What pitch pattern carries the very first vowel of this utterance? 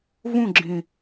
falling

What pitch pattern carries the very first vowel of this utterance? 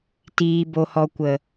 low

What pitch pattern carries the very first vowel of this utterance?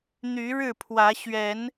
rising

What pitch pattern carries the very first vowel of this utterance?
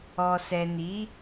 low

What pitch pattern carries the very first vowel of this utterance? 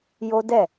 high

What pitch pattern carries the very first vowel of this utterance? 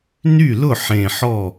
falling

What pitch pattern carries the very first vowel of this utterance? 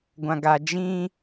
low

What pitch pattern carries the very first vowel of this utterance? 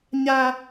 high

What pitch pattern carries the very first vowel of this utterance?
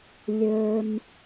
low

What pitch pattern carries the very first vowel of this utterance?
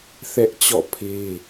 high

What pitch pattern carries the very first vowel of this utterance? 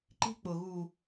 high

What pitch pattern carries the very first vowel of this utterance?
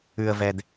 low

